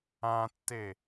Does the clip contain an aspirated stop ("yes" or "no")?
no